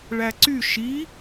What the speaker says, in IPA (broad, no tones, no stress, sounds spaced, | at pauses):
ɭ æ ǀ y ʃ i